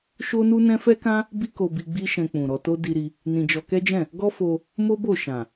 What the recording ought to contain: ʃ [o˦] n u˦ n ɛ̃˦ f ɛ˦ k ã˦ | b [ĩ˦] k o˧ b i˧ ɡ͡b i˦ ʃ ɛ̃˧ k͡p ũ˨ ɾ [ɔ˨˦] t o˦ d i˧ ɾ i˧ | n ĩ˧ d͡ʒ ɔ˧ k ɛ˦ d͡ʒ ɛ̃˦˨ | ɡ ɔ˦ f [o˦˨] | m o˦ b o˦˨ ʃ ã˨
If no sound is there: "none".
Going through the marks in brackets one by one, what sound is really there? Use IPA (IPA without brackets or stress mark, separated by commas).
o˦, i˦, ɔ˧, o˧